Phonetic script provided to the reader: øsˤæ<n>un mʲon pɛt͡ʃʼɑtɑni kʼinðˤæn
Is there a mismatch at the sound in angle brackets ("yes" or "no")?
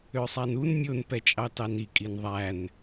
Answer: no